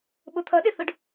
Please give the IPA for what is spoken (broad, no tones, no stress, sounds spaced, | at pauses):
ɓ ʊ t̪ʰ ʌ ɗ ɪ θ ʊ ɖ